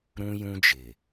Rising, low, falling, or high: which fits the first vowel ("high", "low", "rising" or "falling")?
high